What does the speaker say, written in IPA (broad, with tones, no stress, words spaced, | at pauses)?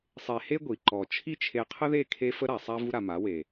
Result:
sˤe˧he˦ɡʷi˨ ǃɔ˨t͡ʃʰi˦t͡ʃʰe˧ qʰə˦ðe˦˨ kʰe˦fə˦ɾa˨sˤa˦ vu˦ɾa˧ma˨˦ we˨